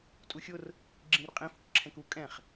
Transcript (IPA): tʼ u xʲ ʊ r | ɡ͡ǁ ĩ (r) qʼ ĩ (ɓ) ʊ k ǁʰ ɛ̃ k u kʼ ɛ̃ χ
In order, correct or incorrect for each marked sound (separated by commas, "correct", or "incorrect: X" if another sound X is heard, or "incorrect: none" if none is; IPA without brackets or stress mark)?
correct, incorrect: f